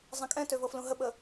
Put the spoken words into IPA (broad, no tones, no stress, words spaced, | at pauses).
zˤɛ̃kʼɛ̃tø vɤflũɦəɓə